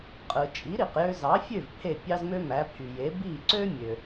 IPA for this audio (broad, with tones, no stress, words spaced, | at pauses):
qʼɯ˩ t͡ʃʼi˩˥ɾi˩q jø˧zɑ˩˥fʲø˥˩v pʰe˥˩pʲɑ˥zmø˥mæ˩˥ pʰy˩je˩˥ bi˥˩ǀø˥mʲø˩